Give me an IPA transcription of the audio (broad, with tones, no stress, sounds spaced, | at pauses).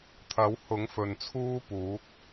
t̪ʰ ɐ˨˥ w h ʊ˨˥ ŋ f ɵ˨ n t͡sʰ uː˥ p uː˨˥ k̚